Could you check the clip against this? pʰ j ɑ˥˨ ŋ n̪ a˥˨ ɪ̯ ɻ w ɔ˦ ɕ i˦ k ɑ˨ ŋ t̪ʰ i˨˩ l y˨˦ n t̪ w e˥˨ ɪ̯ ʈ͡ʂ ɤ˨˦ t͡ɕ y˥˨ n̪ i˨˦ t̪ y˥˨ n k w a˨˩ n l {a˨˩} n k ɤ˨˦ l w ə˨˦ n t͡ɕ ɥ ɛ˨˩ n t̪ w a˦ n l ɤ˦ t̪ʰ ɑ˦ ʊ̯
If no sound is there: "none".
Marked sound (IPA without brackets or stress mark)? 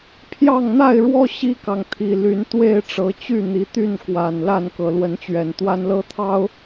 a˥˨